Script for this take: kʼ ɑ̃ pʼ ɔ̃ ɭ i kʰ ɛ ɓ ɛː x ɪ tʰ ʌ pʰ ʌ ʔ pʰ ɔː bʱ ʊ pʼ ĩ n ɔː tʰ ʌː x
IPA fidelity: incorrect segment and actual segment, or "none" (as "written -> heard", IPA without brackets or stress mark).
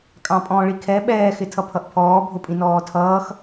none